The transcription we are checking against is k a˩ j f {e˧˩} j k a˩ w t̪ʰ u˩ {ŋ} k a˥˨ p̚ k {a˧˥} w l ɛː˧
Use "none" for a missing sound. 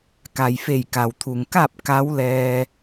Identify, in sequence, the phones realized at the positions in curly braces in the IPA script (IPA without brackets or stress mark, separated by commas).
e˧˩, ŋ, a˧˥